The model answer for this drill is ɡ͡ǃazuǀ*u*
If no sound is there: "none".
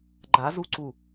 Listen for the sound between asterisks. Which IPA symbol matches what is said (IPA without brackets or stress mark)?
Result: u